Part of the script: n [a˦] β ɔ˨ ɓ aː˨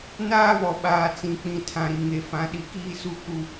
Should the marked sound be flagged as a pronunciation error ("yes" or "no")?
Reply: yes